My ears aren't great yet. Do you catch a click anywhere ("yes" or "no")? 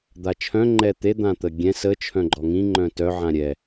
yes